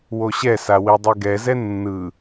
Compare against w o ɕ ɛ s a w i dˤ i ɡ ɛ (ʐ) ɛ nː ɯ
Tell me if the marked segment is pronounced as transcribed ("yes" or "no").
no